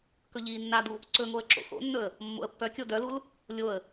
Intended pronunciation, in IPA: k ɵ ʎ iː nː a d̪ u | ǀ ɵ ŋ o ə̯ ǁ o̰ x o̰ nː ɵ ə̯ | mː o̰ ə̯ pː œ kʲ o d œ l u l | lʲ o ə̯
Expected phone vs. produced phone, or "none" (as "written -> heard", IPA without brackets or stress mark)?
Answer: none